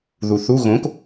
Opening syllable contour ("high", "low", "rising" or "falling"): low